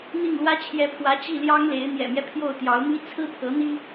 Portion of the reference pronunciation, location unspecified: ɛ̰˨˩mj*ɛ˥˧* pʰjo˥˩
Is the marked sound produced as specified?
no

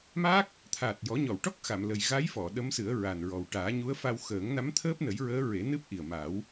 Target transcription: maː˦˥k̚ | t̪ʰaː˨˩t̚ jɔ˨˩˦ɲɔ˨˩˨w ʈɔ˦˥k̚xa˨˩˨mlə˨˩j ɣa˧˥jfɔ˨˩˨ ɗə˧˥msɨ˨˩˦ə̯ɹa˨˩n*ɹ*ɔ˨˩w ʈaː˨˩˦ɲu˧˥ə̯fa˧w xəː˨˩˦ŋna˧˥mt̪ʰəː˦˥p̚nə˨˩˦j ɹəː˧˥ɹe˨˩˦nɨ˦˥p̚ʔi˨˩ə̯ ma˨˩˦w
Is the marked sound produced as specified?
yes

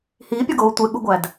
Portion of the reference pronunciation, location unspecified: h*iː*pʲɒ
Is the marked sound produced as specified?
yes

